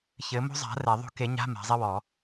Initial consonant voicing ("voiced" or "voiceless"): voiceless